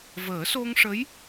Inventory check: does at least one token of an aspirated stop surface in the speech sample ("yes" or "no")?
no